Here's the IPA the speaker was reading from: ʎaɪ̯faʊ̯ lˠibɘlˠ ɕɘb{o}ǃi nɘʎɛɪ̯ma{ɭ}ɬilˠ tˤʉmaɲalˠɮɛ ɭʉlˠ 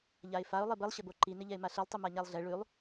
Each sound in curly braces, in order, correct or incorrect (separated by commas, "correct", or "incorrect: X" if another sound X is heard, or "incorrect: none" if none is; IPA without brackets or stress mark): correct, incorrect: none